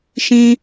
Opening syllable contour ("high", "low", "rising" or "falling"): high